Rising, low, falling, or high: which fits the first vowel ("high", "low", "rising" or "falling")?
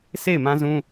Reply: falling